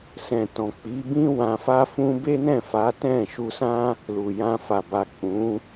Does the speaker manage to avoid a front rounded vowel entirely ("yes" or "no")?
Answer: yes